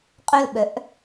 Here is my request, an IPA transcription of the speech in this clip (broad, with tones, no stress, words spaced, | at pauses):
qʼœ˦˨l ɓœ˨˥ʔ